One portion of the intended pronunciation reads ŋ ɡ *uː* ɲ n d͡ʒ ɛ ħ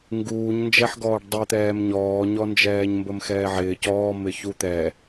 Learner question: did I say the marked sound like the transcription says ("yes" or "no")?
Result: yes